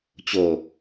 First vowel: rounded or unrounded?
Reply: rounded